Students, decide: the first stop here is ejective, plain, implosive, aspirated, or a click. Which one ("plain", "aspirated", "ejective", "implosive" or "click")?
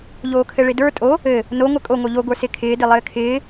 aspirated